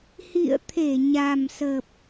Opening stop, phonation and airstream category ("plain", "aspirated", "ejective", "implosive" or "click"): aspirated